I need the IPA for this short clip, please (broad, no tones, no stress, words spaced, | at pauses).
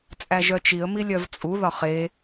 t͡sʼæʒœt͡ʃiə̯ milʲœvt͡sʼu ðɒχe